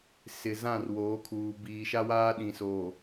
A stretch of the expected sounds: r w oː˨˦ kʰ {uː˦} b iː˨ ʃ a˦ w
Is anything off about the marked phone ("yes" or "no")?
yes